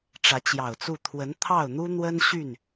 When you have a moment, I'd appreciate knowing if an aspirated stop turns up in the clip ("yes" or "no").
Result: yes